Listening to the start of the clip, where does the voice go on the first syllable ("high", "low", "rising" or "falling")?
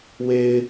low